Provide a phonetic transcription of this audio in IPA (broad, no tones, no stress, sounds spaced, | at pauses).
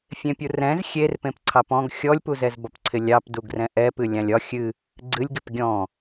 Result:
fʲ ẽ pʲ u r ɛ̃ z xʲ e r p ẽ p ǀʰ ɑ p ɔ̃ ɡ xʲ ɔ lʲ p u z ɛ z b ɒ p ǀʰ ɪ lʲ ɑ p d u ɡ r ɛ̃ ʔ ɛ p ɨ lʲ ɑ̃ lʲ ɒ xʲ ɨ | ɡ͡ǀ ɨ lʲ ɡ ɪ p ɡʲ ɔ̃